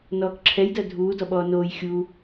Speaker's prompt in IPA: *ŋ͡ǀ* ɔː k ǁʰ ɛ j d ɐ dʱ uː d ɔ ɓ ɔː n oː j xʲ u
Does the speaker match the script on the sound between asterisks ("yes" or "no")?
no